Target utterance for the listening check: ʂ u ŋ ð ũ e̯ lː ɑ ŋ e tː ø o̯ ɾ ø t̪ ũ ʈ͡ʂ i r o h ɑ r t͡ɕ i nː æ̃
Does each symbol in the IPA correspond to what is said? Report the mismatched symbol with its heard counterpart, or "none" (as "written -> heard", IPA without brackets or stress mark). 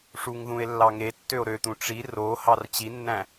none